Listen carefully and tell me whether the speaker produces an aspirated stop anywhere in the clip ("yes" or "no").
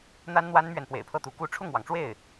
yes